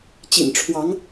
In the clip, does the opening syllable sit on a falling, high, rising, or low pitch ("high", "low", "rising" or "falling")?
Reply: low